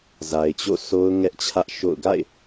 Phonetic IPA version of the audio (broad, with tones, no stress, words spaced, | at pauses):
za˨ɪ̯t͡ɕo̰˦˨sʰo˦ʊ̯ ŋɛ˦ʔt͡ɕʰä˦ʔʃo̰˦˨ʊ̯ ɡa̰˦˨ɪ̯